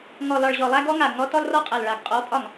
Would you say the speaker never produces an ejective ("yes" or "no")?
no